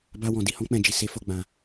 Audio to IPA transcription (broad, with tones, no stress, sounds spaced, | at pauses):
b a˧ w ɔ̃˨ d i˧ h ɔ̃˧ k͡p ɛ̃˨ d͡ʒ i˨ s e˧ f o˧ ɡ͡b ã˨